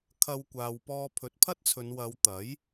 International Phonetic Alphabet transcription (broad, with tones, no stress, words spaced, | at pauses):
kʰɐ˧wkʷaː˨wpɔː˧ pʰɵ˨˥t̚pʰɐ˥t̚t͡sʰɵ˨˧n wɐ˨˧wt̪ɐ˨˥j